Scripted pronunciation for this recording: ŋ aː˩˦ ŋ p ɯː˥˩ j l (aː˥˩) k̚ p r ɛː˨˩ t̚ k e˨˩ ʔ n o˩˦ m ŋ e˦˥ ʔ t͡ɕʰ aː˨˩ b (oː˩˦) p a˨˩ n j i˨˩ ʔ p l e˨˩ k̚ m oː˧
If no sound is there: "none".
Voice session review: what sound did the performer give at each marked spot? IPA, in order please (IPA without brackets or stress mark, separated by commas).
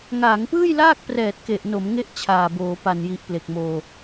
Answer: aː˥˩, oː˩˦